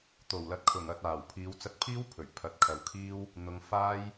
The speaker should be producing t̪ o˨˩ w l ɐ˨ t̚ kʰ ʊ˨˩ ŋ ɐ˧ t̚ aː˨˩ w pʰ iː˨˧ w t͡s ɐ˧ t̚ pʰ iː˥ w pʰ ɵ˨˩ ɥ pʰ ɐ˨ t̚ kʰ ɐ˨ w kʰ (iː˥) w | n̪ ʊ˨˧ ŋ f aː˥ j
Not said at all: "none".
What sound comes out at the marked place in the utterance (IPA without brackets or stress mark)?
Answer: iː˥